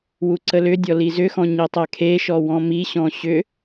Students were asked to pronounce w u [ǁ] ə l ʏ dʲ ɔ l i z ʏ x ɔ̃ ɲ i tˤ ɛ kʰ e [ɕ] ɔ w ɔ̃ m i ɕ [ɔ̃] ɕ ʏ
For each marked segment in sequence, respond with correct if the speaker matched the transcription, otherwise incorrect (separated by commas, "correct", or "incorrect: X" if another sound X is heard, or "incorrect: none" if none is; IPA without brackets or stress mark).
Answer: incorrect: ǀ, incorrect: ʃ, correct